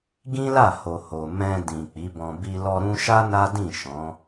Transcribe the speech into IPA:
ɡ ĩ˦ l a˦˨ h o˨ h o˨ m ɛ̃˧ d ĩ˨ k͡p i˨˦ b ɔ̃˧ b i˧ l ɔ˧ ɾ ũ˦ ʃ a˦ n a˦ d ĩ˦˨ ʃ ɔ̃˨˦

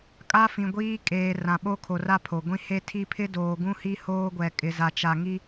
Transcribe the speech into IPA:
kʼ a˦ f ĩ˨ ɡʷ iː˦ kʼ eː˨ r ã˨ ɓ o˦ kʰ o˨ r a˦ pʰ o˨ ɡʷ ĩ˦ h e˦ tʰ i˦ pʰ ɪ˦ d oː˨ ɡ ũ˦ h i˦ h oː˦ ɡʷ ɛ˨ kʼ ɪ˨ z a˨ t͡ʃ a˨ ŋ i˦

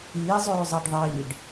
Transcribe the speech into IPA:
iː zˤ øː zˤ ɑ ɖ ðˤ iː ɖ

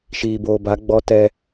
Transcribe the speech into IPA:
ʃ iː˨ b oː˨ b a˨˦ ɡ͡b ɔ˦ t ɛ˦

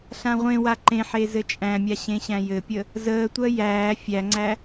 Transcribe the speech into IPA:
ɬ ã ʁʷ ẽ w a ǃ ẽ ħ e z ɘ t͡ʃʼ æ̃ mʲ a ɕ ẽ ɕ æ̃ j ɘ pʲ ə | z əː tʷ ɜ j æː fʲ æ ŋ͡ǀ æ

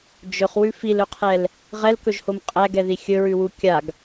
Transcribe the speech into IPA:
d͡ʒ ɵ χ w ʉ f i l ɵ qʰ ɛ l | ʁ ɛ l k ɵ ʒ h o m qʼ æ ɡ ɛ ð i xʲ ɵ ɹ ʉ w u kʲ a ɡ

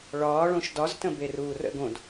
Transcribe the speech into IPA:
ɭ ɒː ɭ õ ʃ d ɒ z t ə̃ b e r uː r ə̰ ɡ õ d

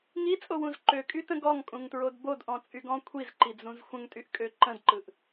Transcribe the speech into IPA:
ŋ i t͡sʼ o w ũ z ǃ ø kʼ y t ə̃ ɡ ɔ ŋ kʼ ũ ŋ t ɹ o d b o d ʔ ɔ̃ t͡sʼ y ɡ ɔ̃ kʷʰ i z ǃ i d͡z ũ z xʷ ə̃ ŋ tʼ y ʔ kʼ ø ǃ ə̃ d ǃ ɯ ʔ

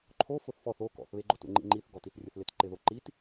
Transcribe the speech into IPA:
ǃʰ o f ʊ θ f ɔ θ o k ɔ̰ θ β e ɡ͡ǃ o t ṵ ŋ͡ǃ ḭ ŋ͡ǃ i θ ɡ ɔ t i θ rʲ ʊ θ l ɪ t ǃ ɪ ð o ǃ i t

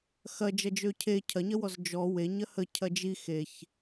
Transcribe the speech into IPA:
x ɐ d͡ʒ ɐ d͡ʒ ø cʰ e cʰ ɐ ɲ ɐ w ɔ z d͡ʒ ɔ w e ɲ ɐ h ə cʰ ɐ d͡ʒ i x e ç

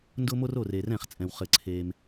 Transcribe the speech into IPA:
n d ʊ˦ m o˦ r o˦˨ r e˨ r ɛ̃˦˨ χ t͡sʼ ɛ̃˨ w χ ɘ˨ ǀʰ e˨ m

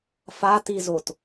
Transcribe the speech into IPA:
f a t i z o t

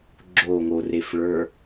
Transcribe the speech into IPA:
ɡ͡ǁ o ŋ o r e f ɭ ə˞

